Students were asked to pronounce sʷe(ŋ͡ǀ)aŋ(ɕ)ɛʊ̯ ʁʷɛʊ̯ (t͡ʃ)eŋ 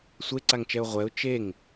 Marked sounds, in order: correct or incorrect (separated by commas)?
incorrect, incorrect, correct